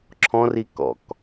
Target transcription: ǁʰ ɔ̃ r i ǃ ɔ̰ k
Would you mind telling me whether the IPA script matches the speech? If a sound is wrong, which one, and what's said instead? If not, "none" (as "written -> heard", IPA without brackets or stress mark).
ǃ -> k